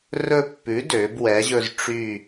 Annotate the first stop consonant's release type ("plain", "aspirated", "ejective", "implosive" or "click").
plain